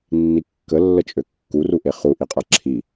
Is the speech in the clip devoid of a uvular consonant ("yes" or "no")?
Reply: no